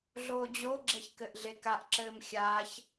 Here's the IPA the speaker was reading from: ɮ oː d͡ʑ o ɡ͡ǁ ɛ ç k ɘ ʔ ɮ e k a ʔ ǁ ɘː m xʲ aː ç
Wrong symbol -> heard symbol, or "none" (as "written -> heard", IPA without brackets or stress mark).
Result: none